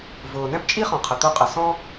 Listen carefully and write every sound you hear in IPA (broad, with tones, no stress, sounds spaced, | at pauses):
v ʊː˩ n ɛ̃˥ p t͡ʃʼ i˥ χ ɔ̃˩ qʰ ə˩ t̪ o˥ qʼ ə˩ s ɔ̃˥